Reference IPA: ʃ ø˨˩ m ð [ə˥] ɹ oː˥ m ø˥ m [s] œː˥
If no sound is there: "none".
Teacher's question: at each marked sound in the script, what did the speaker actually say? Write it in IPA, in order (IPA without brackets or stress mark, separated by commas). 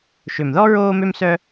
ɔ˥, s